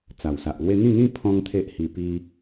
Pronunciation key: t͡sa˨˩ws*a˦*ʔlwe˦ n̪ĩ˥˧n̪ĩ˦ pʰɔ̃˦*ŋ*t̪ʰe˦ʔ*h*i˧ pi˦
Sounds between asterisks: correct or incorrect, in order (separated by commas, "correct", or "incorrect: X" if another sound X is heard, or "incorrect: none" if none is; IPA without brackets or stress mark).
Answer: incorrect: a˨, correct, correct